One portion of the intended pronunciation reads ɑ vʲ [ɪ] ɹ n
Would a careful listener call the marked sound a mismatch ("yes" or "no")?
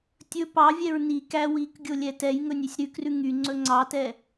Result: yes